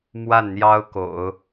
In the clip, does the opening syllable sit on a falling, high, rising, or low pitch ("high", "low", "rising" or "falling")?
falling